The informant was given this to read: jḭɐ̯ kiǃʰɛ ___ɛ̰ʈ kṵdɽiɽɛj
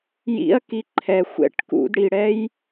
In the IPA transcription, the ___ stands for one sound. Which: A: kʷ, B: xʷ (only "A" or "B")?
B